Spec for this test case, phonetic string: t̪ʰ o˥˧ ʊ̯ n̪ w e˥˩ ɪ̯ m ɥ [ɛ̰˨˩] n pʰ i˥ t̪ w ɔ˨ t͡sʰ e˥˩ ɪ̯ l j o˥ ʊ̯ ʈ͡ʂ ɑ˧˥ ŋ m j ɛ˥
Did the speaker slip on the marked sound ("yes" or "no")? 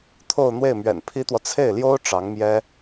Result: no